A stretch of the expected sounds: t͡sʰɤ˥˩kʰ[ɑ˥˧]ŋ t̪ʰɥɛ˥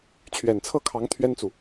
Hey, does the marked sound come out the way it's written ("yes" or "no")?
no